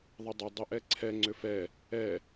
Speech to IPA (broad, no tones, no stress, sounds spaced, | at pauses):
ðˤ ə dˤ ʏ dˤ ɪ ʔ ɛ ǀʰ ɛ ŋ͡ǀ ʏ f ɛ | ɛ